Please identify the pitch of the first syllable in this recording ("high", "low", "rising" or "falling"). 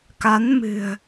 rising